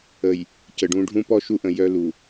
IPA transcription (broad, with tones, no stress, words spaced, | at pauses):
ə˨j | cə˨ɖũ˦ ɖʱũ˦pɔ˦ʃu˦ʔə̃˨ jœ˦lu˨